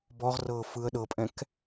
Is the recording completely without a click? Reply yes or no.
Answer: yes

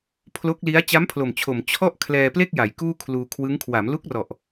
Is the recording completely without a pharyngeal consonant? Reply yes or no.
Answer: yes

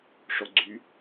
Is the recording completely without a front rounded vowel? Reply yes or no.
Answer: no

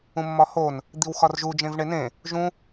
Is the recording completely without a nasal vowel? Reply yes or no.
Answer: no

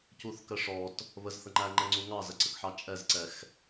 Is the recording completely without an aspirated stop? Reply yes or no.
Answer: yes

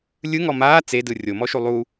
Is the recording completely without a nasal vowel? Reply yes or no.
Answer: yes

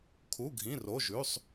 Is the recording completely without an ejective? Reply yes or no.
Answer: yes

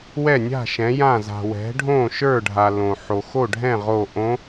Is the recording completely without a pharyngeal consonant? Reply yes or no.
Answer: no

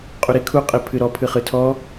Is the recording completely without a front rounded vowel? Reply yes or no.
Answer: yes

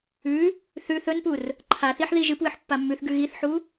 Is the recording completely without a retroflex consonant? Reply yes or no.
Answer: yes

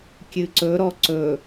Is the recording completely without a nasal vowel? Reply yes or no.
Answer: yes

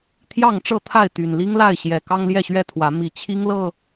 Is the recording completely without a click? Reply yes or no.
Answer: yes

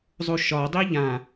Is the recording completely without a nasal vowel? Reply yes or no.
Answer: no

